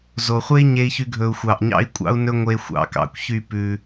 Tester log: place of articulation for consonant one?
alveolar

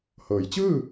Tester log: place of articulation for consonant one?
glottal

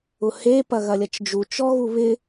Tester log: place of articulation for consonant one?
glottal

